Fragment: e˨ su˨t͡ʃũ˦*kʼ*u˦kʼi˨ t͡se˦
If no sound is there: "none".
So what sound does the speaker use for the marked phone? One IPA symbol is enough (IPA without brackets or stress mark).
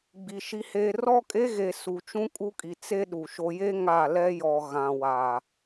kʼ